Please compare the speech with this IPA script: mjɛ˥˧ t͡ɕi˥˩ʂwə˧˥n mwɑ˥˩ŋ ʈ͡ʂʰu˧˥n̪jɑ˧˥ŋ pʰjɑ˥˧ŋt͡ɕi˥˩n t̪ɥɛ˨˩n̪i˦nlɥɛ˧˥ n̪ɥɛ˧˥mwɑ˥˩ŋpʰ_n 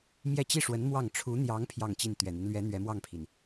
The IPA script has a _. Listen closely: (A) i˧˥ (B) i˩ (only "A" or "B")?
B